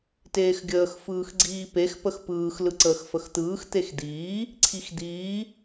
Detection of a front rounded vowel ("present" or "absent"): absent